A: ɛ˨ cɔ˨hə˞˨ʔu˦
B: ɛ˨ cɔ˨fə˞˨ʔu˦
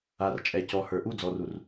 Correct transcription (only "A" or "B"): A